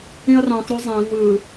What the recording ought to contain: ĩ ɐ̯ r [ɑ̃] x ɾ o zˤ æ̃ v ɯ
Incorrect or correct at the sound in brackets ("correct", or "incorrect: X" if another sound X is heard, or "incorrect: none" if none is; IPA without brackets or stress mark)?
correct